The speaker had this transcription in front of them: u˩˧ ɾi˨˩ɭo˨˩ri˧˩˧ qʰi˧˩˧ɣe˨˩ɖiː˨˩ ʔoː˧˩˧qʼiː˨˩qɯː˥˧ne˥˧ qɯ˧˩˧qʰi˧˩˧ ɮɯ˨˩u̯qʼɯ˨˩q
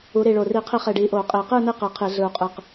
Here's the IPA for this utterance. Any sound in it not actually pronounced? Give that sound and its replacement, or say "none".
ɣ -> χ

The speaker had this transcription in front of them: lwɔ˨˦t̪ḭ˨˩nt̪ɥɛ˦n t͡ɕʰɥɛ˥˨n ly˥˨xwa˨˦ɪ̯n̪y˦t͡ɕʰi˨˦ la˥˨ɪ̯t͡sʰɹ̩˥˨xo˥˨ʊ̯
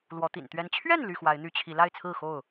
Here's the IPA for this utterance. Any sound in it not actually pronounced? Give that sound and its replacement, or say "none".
none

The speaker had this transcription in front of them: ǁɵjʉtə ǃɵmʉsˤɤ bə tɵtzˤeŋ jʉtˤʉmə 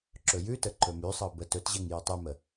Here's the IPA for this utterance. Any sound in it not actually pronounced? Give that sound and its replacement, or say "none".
zˤ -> ʑ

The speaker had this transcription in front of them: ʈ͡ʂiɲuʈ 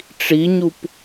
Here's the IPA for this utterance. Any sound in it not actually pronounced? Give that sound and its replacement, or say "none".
ʈ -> p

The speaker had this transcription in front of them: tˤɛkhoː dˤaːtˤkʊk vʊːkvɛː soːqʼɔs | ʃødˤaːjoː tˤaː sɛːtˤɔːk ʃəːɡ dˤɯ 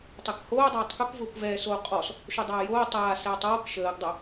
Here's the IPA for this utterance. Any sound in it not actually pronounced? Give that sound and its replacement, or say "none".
ɯ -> ə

